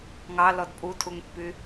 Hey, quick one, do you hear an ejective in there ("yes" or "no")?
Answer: yes